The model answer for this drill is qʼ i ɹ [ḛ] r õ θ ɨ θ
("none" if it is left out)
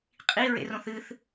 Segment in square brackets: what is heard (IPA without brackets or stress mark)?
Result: ḛ